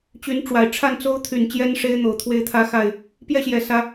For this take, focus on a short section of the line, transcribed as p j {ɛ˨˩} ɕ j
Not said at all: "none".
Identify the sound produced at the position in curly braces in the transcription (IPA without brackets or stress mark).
ɛ˥˨